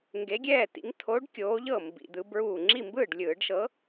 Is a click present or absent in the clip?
present